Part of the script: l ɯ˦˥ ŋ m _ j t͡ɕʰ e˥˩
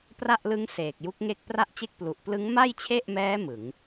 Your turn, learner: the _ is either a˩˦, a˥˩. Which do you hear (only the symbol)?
a˥˩